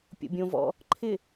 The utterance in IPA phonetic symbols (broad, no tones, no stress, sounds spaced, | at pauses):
pʲ o̰ bʲ õ v ɔ̰ | ǃʰ ɪ